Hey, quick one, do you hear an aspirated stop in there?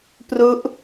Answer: no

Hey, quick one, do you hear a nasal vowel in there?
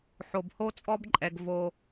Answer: no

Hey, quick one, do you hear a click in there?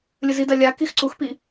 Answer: yes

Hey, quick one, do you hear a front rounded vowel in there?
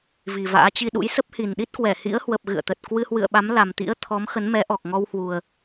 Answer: no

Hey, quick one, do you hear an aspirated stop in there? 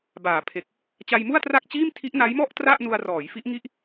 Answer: yes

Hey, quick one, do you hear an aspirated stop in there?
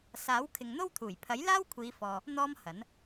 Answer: yes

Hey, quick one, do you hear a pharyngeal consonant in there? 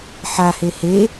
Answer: yes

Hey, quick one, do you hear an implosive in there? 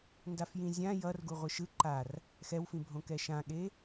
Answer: yes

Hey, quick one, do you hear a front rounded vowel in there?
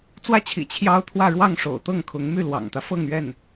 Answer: yes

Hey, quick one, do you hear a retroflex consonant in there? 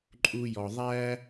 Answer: no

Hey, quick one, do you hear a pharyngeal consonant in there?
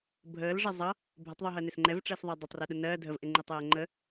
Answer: no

